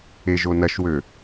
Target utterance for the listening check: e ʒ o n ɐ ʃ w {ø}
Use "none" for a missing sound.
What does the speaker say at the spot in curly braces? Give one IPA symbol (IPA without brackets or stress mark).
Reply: ø